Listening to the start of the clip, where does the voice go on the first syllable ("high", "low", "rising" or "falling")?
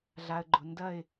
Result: low